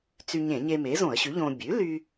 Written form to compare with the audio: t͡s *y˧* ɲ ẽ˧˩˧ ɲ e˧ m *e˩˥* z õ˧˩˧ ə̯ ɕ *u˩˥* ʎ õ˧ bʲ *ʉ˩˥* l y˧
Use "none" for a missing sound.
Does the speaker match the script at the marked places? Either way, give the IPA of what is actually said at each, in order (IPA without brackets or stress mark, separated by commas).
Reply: y˧, e˩˥, ʉ˩˥, ʉ˩˥